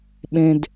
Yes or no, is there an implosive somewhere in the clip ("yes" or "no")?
yes